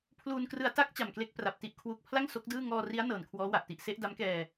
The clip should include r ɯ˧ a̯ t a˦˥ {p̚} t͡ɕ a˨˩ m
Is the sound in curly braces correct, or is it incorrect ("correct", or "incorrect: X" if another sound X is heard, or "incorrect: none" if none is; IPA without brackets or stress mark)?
incorrect: k̚